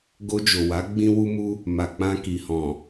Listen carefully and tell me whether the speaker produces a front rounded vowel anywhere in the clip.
no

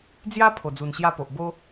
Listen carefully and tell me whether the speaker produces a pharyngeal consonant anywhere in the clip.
no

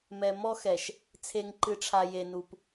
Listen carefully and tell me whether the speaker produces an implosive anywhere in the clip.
no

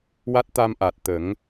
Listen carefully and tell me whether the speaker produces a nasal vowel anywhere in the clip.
no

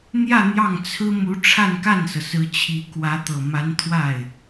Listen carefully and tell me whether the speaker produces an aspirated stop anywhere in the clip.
yes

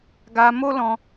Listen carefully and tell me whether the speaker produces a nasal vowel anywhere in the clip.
yes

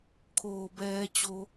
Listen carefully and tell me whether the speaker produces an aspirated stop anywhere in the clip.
yes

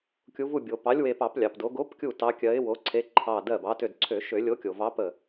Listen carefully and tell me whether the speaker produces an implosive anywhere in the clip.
no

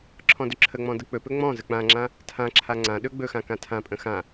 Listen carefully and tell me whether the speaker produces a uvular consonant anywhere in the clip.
no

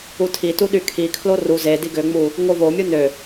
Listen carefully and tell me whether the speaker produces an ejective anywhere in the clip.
no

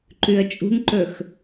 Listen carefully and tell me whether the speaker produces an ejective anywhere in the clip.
yes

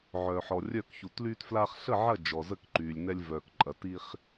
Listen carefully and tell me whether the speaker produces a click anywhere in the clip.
yes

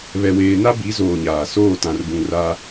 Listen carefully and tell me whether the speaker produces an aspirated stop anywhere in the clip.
no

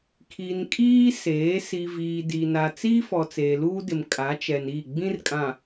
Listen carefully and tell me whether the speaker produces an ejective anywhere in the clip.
yes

